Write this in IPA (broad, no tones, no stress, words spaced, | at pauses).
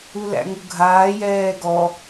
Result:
ulæ̰ŋuɡʱaː jɛːɡɔ